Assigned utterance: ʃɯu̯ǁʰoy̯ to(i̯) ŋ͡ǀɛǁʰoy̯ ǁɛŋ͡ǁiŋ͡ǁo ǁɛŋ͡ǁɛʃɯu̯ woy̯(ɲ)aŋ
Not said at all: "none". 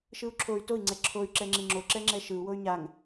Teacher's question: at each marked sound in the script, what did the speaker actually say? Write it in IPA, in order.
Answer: i̯, ɲ

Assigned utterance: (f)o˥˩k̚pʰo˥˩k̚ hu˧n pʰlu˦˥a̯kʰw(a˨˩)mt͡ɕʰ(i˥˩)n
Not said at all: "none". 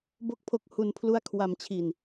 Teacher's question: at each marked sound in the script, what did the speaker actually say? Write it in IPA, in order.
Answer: b, a˧, i˧

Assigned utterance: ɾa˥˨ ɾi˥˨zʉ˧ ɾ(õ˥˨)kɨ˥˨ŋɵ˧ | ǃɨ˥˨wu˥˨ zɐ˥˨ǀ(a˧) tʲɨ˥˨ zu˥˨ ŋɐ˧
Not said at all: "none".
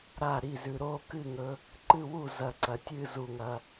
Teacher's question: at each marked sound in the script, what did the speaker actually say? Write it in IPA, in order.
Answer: o˥˨, ɐ˧

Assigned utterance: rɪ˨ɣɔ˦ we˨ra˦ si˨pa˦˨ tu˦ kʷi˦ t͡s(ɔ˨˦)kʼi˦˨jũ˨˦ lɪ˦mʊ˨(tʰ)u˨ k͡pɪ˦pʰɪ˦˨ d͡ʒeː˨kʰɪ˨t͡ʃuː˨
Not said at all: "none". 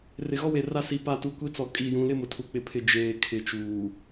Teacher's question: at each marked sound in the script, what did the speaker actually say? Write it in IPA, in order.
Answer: ɔ˨˦, tʰ

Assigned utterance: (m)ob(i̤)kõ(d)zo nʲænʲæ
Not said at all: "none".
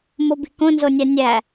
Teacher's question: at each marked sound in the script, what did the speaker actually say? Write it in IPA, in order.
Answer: m, i̤, n

